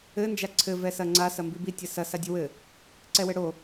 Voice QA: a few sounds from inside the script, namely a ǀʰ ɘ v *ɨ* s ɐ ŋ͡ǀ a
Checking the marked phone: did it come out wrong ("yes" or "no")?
yes